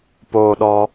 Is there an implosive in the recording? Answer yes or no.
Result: yes